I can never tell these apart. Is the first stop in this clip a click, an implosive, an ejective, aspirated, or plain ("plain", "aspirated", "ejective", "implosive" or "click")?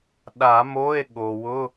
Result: implosive